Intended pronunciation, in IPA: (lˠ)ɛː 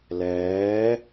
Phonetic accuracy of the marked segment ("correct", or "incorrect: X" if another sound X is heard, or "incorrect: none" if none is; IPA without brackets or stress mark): incorrect: l